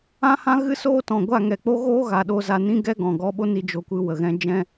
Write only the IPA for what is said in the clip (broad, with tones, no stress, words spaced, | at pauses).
ã˦hã˦ ɣɨ˦soː˦tɔ̃˨ ɡʷa˦˨ŋɛ˨k͡po˦ɣoː˦ ɣa˨ɗo˧ za˧ nĩ˦ɡɛ˦ ɡɔ̃˨ɡɔ˧ɓo˦ni˧ d͡ʒo˧kʷɨ˧wə˨ɣɛ̃˦ d͡ʒɛ̃˦